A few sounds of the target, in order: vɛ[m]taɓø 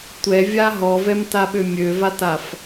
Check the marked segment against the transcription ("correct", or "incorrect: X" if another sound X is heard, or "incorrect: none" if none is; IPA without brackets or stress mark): correct